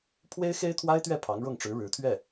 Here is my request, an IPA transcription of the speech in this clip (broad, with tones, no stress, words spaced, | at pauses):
pʰwe˥ɪ̯xe˥ɪ̯t̪ʰwa˥ɪ̯t̪ɥɛ˥˩ pʰɑ˧˥ŋɻʊ˥˩ŋʈ͡ʂɻ̩˧˥ ɻɻ̩˧˥t̪ʰɥɛ˥˩